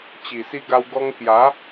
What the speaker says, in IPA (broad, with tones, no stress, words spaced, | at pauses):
t͡ɕi˨˩si˧ɡa˧w ɡɔ˧ŋkja˨˦